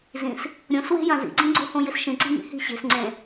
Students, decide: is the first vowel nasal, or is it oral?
nasal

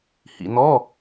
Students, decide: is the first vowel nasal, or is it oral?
oral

